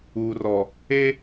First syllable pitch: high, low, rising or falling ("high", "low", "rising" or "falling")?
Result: low